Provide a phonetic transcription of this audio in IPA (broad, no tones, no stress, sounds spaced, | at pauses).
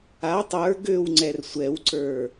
a tˤ ə˞ ɡ ø w ŋ͡ǀ ɛ r sʷ ɛ w ǀ ə˞